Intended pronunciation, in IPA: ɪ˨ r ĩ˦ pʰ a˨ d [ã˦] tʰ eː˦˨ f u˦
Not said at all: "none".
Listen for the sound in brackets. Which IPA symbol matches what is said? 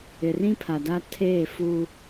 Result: a˦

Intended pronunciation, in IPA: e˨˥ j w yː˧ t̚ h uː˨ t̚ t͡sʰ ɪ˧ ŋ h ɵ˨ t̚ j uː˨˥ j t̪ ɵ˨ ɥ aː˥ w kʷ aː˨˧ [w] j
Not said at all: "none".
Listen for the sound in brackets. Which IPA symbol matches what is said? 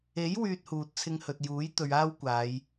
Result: none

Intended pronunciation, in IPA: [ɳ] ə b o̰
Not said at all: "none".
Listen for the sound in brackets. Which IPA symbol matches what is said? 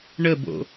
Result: ɳ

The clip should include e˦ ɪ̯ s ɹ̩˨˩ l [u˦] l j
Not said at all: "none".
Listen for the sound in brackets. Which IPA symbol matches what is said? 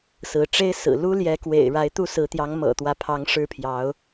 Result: u˦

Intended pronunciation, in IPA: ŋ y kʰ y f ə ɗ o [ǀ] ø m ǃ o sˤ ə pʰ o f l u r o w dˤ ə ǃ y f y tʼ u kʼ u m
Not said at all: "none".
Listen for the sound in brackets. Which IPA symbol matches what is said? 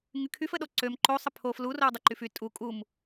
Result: ǀ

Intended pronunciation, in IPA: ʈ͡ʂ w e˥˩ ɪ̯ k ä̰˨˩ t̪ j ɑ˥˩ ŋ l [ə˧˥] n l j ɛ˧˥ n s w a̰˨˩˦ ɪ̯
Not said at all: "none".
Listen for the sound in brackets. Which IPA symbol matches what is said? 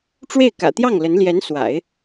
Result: ə˧˥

